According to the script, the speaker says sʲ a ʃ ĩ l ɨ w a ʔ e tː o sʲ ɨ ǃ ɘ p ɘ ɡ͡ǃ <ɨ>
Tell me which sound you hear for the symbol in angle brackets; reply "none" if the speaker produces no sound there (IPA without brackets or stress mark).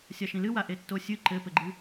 ɨ